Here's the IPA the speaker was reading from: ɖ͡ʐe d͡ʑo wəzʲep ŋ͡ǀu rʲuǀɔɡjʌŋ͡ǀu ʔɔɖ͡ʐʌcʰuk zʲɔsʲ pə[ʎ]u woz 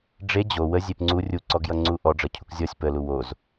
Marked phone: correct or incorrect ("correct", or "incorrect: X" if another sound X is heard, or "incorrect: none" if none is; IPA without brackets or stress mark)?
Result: incorrect: l